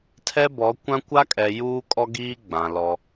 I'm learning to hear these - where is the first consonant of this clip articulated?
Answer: tongue tip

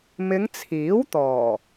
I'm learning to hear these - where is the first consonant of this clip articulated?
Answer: lips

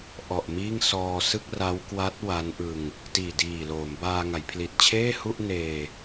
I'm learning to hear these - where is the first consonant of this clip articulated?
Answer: throat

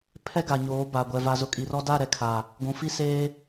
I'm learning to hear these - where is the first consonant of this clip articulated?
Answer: lips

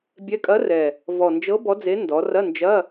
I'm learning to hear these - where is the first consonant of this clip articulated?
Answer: lips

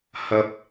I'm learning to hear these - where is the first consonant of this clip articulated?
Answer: throat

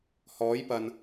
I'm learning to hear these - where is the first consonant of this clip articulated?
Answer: throat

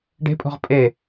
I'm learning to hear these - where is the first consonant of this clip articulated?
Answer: retroflex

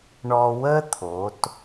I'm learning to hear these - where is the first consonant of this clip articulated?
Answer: retroflex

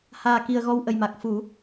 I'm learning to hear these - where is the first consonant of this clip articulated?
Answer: throat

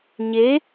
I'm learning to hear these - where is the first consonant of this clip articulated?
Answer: palate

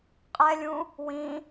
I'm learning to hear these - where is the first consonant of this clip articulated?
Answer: uvula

